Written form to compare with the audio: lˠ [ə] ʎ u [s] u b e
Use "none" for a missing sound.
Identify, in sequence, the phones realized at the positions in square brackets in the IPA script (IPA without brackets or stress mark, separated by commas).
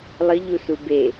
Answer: ə, s